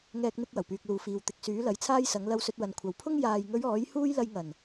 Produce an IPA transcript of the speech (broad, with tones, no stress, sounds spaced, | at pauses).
ŋ ɛː˧ k̚ n̪ ɪ˧ k̚ w ɐ˨˩ w p yː˨ k̚ l uː˨ f iː˨ w t̪ ɪ˨ k̚ s yː˨˥ l ɐ˨˥ j t͡sʰ aː˥ j s ɐ˨˥ ŋ l ɐ˧ w s ɵ˧ t̚ w ɐ˨ n kʷʰ ɐ˨ w pʰ ʊ˥ ŋ j aː˨ j ŋ ɵ˨˧ ɥ ɔː˨˥ j h uː˥ j l ɐ˧ j ŋ ɐ˨˩ n